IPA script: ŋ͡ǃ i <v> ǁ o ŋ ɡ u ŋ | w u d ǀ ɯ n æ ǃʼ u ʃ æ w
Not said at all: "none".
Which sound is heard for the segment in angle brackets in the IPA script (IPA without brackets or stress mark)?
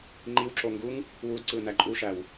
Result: w